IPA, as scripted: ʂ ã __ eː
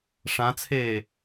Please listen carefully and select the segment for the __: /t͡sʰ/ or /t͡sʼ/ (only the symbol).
t͡sʰ